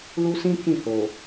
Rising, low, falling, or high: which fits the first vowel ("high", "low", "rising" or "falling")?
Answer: high